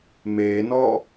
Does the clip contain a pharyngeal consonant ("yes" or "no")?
no